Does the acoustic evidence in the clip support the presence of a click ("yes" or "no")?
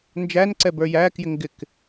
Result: yes